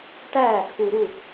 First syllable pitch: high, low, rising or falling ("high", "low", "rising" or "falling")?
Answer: falling